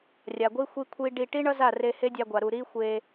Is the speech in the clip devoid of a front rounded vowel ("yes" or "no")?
yes